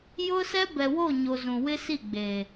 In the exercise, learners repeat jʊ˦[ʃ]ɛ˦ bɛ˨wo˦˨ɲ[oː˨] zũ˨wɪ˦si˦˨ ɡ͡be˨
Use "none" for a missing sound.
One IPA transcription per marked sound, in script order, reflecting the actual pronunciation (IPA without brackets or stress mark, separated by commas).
s, o˨